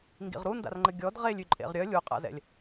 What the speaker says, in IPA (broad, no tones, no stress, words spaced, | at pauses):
ŋɡḭʁɾunda̰rŋ͡ǃə ɡʲɔd ʁelʲy ǃʼḛʁɾʲœ lʲuqʼa̰zɛ̰lʲ